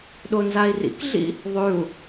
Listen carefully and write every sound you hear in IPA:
ɗ o n z a i̯ r ḭ k ɮ ḭ | ðˤ ʉ u̯

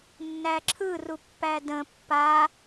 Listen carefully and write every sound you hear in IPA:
nː æ ǁʰ ɯ r u pː æ d ə̃ pː a

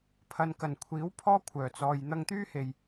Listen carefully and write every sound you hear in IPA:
pʰ ɐ˨ n k ɐ˨˩ n kʷʰ iː˨˥ w pʰ ɔː˧ kʷʰ œː˨˩ t͡s ɔː˨ j n̪ ɐ˧ ŋ t̪ yː˥ h e˨ j

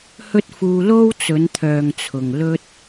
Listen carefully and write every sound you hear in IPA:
h ɵ˥ t̚ f uː˧ l o˥ w t͡s ɵ˨˧ n t̪ʰ œː˨ ŋ t͡sʰ ʊ˨ ŋ l ɵ˥ t̚

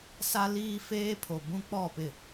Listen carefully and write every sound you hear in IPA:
s a˦ l iː˦ f eː˦ pʰ o˨ b ũ˦ k͡p ɔ˦˨ p ɪ˦˨

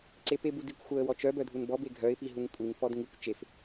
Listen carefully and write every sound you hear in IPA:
ǀ e p e b u d i kʷ xʷ œ ə̯ w ɔ t͡ʃ œ b œ dʱ u n b ɔ b e ɡʱ œ ɪ̯ p i ɦ u ŋ kʷʼ i ŋ f ɔ d ŋ i kʷ t͡ʃ e f

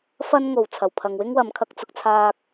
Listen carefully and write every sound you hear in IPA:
f ɐ˥ n ŋ o˨ w t͡sʰ ɐ˨˩ w pʰ ɐ˨ ŋ w ɪ˥ ŋ w ɐ˨ m kʰ ɐ˧ k̚ t͡s ʊ˨ k̚ t͡sʰ aː˧ k̚

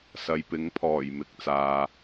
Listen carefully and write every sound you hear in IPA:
s ɐ˨ j p ɪ˨˥ ŋ pʰ ɔː˨˩ j m ɪ˨ k̚ t͡s aː˨

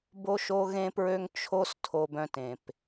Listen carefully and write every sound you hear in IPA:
b o˧ ʃ o˧ ɣ ẽ˧ p ɹ ø˧ ŋ t͡ʃʰ o˥ s tʰ o˧ b œ̃˧ t ẽ˩ p

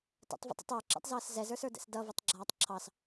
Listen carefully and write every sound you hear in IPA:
t ə̰ tˤ v ə̰ tˤ ə̰ tˤ ə˞ ǁ ɛ̰ tˤ z ʌː s z ɛ z ə˞ s ə˞ d ɛ̰ s d ʌ v ʌ tˤ ɡ͡ǁ aː tˤ ǁʰ ɑ s

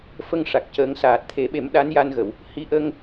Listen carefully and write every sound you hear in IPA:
f ə˧ ŋ ʂ a˨˩ k̚ c əː˧˥ ŋ s aː˨˩ t̚ t̪ʰ e˨˩˦ ɓ e˨˩˦ m ɗ a˧˥ n j a˧ n ɣ ə˨˩˨ w | h i˧˥ ʔ ə˧ ŋ

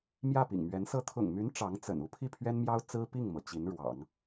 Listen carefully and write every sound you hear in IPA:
m j ä˥˩ p ḭ˨˩ ŋ m ɥ ɛ˧˥ n s ɤ˥ t̪ʰ ʊ̰˨˩ ŋ m y˧˥ n ʈ͡ʂ ɑ˧˥ ŋ t͡s ə̰˨˩ n u˥ pʰ i˥˩ pʰ ɥ ɛ˥ n m j ɑ˥ ʊ̯ t͡s ɹ̩˥ p i˥˩ ŋ m ɤ˩ t͡ɕ i˧˥ n ɻ w ɑ̰˨˩˦ ŋ

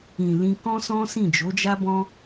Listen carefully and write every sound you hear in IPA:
ĩ˨ l ĩ˧ k ɔ̃˦ s ɔ̃˦ s ĩ˦˨ d͡ʒ o˨˦ d͡ʒ a˦ b ɔ̃˦

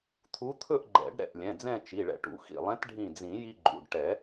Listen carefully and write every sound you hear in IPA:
t̪ʰ u˧˥ t̪ʰ ɵ˥˧ ʔ ɡ͡ǃ ɛ̰˨˩˦ ɖ ɾ ɛ̰˧˩ ʔ lʲ ɛ̃˩˧˩ d͡z ɛ̃˥˧ t͡ʃ i˩˧˩ ɭ ɛ̰˧ ʈ ṵ˩˧˩ x ḭ˧˩ lˠ ɛ̃˧˥ t ɖʱ ĩ˧˩ d͡z ĩ˨˩˦ j i˧ ɡ͡ǃ ṵ˩˧˩ ɖ ʈ ɛ˨˩˦

